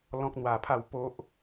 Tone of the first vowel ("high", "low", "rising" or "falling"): high